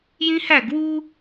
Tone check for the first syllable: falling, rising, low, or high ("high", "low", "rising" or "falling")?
high